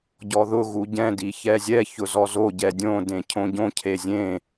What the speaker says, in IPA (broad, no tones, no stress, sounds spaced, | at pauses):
ɟ ɔ ð ʊ ɣ u ɟ ɛ̃ d i ç ɛ zʲ ɛ ç ʊ z ɔ z o ɟ ɛ dʲ õ d ẽ cʰ õ ɟ õ cʰ e zʲ ẽ